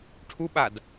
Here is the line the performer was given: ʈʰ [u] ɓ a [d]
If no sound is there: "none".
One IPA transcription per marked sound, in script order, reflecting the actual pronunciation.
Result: u, d

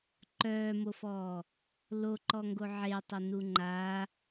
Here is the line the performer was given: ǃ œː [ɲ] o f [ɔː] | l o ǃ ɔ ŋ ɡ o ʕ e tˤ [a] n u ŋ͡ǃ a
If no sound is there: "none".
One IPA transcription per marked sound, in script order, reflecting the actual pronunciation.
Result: m, ɔː, ə

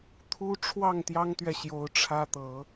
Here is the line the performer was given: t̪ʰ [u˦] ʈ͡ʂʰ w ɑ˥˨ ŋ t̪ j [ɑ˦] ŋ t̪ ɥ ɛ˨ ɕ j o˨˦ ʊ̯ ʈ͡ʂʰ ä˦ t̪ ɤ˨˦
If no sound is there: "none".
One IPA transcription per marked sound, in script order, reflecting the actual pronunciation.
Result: u˦, ɑ˦

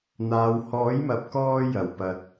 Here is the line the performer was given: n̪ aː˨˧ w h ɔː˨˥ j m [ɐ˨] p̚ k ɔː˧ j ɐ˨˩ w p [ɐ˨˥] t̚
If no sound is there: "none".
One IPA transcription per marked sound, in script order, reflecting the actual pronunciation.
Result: ɐ˨, ɐ˨

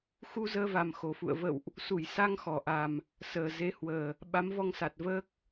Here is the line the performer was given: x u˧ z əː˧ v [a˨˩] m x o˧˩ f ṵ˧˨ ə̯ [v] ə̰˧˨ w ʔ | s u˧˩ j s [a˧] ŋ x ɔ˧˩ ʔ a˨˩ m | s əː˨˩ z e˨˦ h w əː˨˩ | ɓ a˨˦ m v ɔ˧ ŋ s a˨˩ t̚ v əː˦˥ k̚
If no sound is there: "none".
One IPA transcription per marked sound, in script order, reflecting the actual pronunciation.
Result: a˨˩, v, a˧

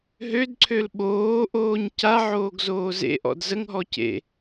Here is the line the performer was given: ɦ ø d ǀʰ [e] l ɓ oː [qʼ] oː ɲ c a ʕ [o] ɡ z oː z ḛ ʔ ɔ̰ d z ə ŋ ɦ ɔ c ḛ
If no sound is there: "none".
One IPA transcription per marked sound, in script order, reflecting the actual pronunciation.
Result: ø, ʔ, oː

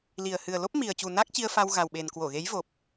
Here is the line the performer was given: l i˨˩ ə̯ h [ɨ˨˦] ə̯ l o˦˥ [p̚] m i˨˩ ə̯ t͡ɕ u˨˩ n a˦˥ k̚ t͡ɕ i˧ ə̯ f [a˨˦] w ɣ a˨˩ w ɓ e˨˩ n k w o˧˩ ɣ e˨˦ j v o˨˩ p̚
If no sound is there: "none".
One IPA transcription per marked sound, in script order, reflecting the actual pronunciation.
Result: ɨ˨˩, p̚, a˧

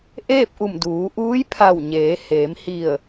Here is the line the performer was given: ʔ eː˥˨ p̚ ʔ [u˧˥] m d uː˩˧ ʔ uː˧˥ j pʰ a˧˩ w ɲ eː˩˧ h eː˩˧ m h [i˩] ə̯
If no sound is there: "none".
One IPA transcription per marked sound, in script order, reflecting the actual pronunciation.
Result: u˧˩, i˧˩

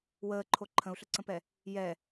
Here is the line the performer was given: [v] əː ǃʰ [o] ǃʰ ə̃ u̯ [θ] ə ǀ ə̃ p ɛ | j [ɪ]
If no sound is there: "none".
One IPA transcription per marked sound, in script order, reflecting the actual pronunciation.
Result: w, o, ɬ, ɛ

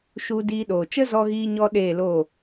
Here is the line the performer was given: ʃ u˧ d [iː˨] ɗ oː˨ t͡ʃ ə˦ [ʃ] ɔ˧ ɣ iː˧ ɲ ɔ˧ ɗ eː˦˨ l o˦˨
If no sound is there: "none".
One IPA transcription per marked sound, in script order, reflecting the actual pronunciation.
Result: iː˧, z

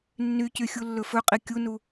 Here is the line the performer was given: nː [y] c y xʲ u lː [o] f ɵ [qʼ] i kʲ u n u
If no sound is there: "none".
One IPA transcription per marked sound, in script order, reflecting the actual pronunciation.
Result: y, ɵ, qʼ

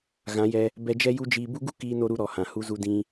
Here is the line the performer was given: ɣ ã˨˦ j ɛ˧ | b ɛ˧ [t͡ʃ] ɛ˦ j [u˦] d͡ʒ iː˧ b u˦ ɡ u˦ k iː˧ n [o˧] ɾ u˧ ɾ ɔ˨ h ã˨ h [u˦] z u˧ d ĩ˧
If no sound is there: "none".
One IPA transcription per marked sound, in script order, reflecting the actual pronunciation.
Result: d͡ʒ, u˦, o˧, u˧

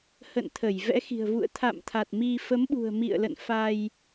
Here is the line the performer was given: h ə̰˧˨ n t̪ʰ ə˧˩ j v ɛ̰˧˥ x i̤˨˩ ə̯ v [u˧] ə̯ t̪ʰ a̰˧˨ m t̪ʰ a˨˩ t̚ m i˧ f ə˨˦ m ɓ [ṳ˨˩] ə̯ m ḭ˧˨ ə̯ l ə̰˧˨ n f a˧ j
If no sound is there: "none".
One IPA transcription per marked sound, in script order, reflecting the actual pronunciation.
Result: ṵ˧˨, ṳ˨˩

